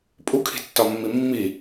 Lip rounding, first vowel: rounded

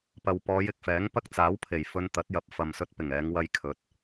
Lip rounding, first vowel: unrounded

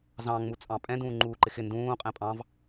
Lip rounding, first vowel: unrounded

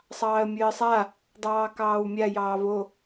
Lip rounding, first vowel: unrounded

